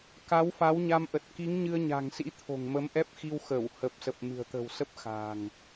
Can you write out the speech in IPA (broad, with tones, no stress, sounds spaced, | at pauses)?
k a˨˦ w f a˨˦ w ɲ a˧ m ʔ ə˨˩ t̚ k i˨˦ ŋ ɲ ɨ˧ ə̯ ɲ a̤˨˩ ŋ s ḭ˧˥ t̪ʰ o̤˨˩ ŋ m ə˨˦ m ʔ ɛ˦˥ p̚ x i˧ w x ə˧˩ w h ə˨˩ p̚ s ə˨˩ p̚ m ɨ̤˨˩ ə̯ t̪ ə̤˨˩ w s ə˦˥ p̚ x a̤˨˩ ŋ